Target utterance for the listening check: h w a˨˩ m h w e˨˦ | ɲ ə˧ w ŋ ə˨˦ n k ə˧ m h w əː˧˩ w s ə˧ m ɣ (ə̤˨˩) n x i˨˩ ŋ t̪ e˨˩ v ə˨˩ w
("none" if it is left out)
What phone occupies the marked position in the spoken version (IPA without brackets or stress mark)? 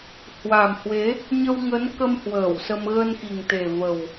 ə˧